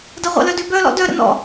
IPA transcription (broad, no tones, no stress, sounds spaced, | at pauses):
d ɐ ʁʷ ə̰ l œ d ø b œ l ɔ̰ d œ ɾ ə̰ n ɔ̰